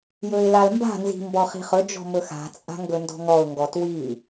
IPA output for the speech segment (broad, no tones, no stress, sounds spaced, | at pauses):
j ɵ ɪ̯ l a l m b a̤ n z i̤ m b ɔ χ i̤ χ ɵ d͡ʒ ɔ̤ m ɵ x a̤ t͡sʼ a̤ ŋ ɡ ɵ n d ɔ̤ ŋ ɔ ʊ̯ ŋ ɡ ɔ t w i